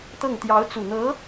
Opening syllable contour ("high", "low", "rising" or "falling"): falling